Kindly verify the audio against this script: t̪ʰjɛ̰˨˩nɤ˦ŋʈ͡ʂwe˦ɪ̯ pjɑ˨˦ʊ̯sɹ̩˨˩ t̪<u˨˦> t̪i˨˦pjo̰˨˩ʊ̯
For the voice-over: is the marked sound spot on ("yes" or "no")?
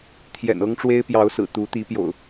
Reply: yes